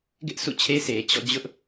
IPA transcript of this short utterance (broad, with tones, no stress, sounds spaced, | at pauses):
ɡ ɪ˦ ʔ s ṵ˦˨ t͡ɕʰ e˦ s e˨ t͡ɕ ɔ̰˦˨ d͡ʑ ʊ˦ ʔ